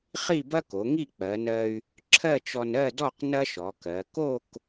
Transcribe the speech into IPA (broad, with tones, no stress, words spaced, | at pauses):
χi˥˧bɐ˥ko˩˧ŋi˥˧ k͡pɜ˩˧nɜ˧y̯ | ǁʰɜ˥˧t͡ʃɔ˧n ɜ˥˧dɔ˥˧q nɐ˥ʃɔ˩˧kɜ˩˧ ko˥˧k